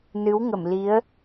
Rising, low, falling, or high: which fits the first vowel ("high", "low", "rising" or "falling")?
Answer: rising